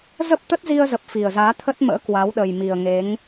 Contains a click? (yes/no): no